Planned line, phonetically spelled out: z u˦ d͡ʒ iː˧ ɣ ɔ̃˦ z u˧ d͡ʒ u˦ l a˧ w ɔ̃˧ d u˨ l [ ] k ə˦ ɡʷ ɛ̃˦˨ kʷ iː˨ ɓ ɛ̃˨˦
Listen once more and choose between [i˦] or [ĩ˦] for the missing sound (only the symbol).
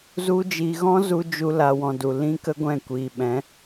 ĩ˦